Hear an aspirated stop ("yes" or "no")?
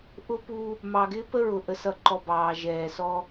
no